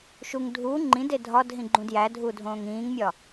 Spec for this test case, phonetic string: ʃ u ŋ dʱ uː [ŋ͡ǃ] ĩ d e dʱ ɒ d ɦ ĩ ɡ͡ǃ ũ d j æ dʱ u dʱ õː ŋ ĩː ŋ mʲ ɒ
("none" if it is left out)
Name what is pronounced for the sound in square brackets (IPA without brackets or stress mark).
ŋ͡ǃ